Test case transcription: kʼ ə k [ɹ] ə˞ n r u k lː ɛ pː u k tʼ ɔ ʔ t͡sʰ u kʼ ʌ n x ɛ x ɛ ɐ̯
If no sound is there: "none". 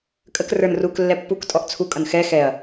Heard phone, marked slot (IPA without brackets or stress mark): r